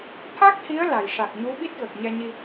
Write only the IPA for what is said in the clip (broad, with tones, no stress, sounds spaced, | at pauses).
t̪ʰ a˦˥ k̚ h i˧˥ ə̯ l a˨˩ j ʂ a˨˩ k̚ ɲ u˧˥ ɓ i˦˥ t̚ ɣ ə˨˩ k̚ ɲ ɛ˧ ɲ i˧